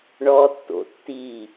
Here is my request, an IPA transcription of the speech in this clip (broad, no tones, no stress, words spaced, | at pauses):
ɳɔːtːo̰ tːiː